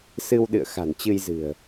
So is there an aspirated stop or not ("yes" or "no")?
no